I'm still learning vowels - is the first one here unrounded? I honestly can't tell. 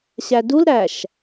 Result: yes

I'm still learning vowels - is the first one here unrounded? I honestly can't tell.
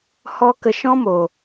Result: no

